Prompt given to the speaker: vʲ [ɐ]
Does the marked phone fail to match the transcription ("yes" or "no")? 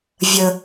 yes